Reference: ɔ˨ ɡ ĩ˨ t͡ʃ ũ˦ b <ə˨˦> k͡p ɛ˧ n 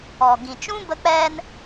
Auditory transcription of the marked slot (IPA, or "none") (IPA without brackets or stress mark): ə˧